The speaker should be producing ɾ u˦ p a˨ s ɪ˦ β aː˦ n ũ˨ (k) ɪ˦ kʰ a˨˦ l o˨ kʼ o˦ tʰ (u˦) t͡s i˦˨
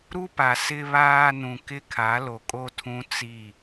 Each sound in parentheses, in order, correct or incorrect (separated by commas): correct, incorrect